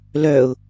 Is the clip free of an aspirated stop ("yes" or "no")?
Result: yes